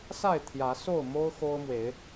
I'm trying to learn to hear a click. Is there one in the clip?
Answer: no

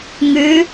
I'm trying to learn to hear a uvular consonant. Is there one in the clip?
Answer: no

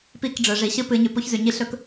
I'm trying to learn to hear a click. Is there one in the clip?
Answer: no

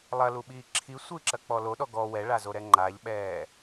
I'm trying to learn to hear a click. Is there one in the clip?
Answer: yes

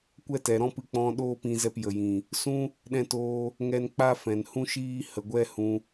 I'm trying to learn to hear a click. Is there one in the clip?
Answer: no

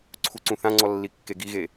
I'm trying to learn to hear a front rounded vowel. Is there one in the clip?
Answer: no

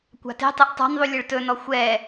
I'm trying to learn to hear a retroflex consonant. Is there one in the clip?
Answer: yes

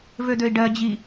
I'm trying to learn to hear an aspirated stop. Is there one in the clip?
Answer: no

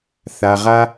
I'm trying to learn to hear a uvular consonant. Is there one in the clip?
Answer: yes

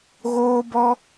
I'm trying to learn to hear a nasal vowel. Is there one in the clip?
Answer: no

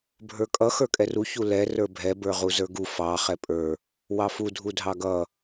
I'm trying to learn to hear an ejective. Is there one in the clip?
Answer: yes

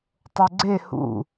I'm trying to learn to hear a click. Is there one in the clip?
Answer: yes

